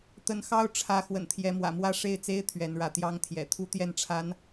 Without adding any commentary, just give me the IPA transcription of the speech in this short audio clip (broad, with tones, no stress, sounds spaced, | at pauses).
t̪ ə˧˥ n x ɑ˥ ʊ̯ ʈ͡ʂʰ ä˧˥ x w ə̰˨˩ n t̪ʰ j ɛ˧˥ m w ä̰˨˩ m w ä˥ ʂ e˥˩ ɪ̯ t͡s e˥ ɪ̯ t̪ʰ ɥ ɛ˧˥ n ɻ ä˥ t̪ j ɑ˥ ŋ t̪ʰ j ɛ̰˨˩ t̪ʰ u˥˧ t̪ j ɛ˥˩ n ʈ͡ʂʰ a˧˥ n